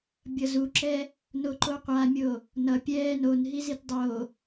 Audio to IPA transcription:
bʲ ʌ z u ǁ ɛ | n o ǃ o qʷ a mʲ o | n ʌ pʲ ɛː n o n ɦ i z i t dˤ o

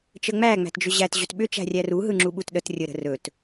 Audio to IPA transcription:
t͡ʃ ə ŋ͡m æ ŋ͡m æ̤ t d͡ʒ ʏ ʑ æ t ʑ ɵ t ɓ ʏ t͡ʃ æ̤ rʲ æ r u ɦ ɯ ŋ͡ǁ u ɓ u t ɗ ə t rʲ ə ɾ ə̤ r ɵ t

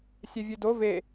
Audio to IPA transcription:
sʲ ɛ vʲ ø d o v e

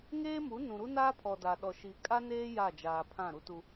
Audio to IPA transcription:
ŋ eː˦ m u˨˦ n ũ˨ ɾ u˦ n aː˦ pʰ ɔ˨ d a˨ ɗ ɔ˨ ʃ i˨ kʼ a˦ n eː˦ j a˦˨ d͡ʒ aː˨ pʰ ã˦˨ ɾ u˦ t u˦

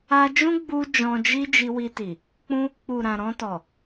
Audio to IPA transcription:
a˧ d͡ʒ ũ˦ ɡ͡b u˦ d͡ʒ ɔ̃˧ d͡ʒ i˦ d͡ʒ i˧ w i˧ t i˨ | k͡p ũ˦ | k͡p u˨ ɾ ã˨ ɾ ɔ̃˧ t ɔ˨

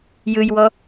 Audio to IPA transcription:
j ɯ j w ɔ

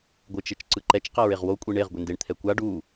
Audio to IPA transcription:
ɡʷ ɯ t͡ʃ e t͡ʃ ǀ ɯ ǃ ɛ t͡ʃ q a ɹ e ʁ w o kʷʼ i ɳ e ʁ ɡʷ e n d e ɳ t̪ʰ ɛ kʷ a ɖ u

